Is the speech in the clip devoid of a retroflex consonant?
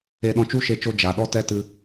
yes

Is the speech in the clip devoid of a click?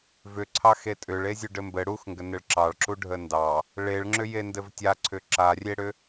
no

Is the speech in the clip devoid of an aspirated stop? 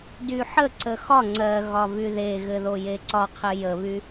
no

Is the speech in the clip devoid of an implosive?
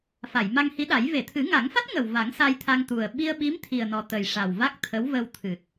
no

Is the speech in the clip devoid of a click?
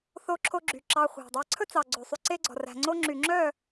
no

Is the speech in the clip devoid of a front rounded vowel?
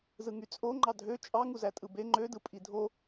no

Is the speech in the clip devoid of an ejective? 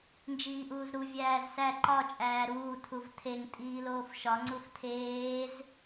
no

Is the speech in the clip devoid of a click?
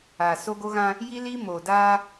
yes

